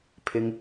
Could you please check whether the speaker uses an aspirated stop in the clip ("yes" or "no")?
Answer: yes